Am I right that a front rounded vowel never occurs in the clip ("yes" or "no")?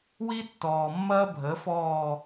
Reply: yes